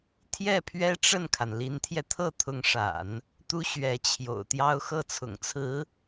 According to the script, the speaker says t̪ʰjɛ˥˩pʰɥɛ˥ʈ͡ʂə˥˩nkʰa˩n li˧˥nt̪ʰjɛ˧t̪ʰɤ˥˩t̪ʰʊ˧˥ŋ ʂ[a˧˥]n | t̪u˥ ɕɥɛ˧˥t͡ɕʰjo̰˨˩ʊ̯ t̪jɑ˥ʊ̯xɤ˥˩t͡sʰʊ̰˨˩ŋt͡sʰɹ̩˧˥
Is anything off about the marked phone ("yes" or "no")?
yes